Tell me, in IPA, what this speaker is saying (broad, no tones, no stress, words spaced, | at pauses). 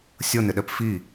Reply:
sʲɤnɪɗɛp fi